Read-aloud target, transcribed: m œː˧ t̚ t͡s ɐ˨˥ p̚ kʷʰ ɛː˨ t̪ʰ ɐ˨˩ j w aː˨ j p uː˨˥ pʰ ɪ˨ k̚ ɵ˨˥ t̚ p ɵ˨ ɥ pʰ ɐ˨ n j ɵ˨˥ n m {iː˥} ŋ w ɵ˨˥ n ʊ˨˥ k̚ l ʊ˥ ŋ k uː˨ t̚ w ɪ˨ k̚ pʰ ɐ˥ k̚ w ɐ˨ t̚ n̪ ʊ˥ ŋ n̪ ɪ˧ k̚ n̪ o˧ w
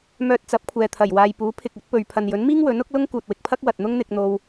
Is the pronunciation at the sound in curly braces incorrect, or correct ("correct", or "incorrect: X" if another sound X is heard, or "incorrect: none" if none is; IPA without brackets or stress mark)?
correct